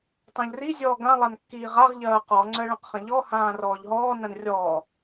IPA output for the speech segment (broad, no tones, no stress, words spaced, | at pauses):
tˤãʎri zʲɔ ɡã lˠankːiːʁaʁ ʎɐːqɔ ŋ͡ǀɜɭɐ̃qχɐ̃ʎɔ hãːrɔːʎɦɔː nɐ̃nrʲɔː